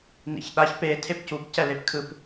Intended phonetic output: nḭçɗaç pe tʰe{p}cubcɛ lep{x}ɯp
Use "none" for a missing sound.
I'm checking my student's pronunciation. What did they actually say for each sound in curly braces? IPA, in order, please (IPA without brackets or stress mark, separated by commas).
p, kʰ